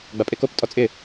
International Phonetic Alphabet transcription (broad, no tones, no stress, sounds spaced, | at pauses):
ɡ͡b a pʼ e k o p tʼ ɔ t͡sʼ ɪ